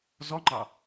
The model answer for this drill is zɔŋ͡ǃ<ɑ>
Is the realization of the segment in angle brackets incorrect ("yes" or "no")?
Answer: no